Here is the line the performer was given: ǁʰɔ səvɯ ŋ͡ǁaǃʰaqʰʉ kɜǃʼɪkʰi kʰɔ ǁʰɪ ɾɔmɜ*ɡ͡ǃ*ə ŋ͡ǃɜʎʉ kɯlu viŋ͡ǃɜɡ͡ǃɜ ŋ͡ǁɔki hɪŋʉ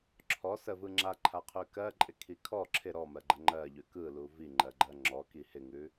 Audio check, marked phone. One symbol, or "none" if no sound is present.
ɡ͡ǃ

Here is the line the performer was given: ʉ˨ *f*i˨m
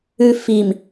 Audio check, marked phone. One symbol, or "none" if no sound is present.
f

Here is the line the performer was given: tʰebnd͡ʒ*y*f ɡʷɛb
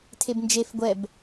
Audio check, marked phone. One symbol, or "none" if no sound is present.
e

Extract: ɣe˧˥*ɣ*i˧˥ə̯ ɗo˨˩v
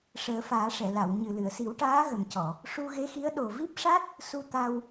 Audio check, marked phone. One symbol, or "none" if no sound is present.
x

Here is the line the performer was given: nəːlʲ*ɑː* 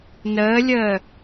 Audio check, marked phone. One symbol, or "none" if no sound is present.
əː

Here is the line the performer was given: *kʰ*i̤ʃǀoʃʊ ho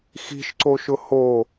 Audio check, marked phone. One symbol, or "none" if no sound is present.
x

